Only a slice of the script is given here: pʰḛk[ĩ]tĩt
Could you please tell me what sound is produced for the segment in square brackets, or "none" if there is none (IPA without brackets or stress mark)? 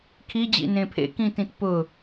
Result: ĩ